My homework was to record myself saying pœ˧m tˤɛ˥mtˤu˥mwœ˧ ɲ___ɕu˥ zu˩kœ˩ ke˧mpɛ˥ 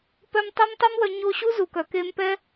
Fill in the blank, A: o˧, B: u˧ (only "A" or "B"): A